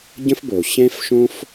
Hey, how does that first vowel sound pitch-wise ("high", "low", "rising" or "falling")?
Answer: high